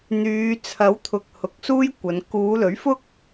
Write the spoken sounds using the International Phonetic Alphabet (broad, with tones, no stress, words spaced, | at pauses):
n̪yː˨˧ t͡sʰɐ˨˥wt̪ʰʊ˨k̚ hʊ˨˥k̚suː˥jkʷɐ˨˧n kuː˨˧lɵ˨˥ɥfʊ˥k̚